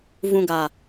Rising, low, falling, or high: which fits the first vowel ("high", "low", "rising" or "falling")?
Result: low